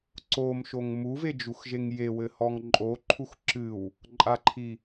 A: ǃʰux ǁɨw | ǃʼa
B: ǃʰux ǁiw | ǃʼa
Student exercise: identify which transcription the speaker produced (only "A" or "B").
A